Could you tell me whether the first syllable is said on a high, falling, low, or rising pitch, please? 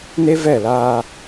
high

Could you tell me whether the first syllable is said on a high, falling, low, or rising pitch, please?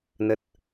low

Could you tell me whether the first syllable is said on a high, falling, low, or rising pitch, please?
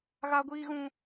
high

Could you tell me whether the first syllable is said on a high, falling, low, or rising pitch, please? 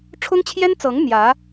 high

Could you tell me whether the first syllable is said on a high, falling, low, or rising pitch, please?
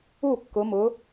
falling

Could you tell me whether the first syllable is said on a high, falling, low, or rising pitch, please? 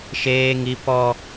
high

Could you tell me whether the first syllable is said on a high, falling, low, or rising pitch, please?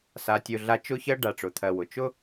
low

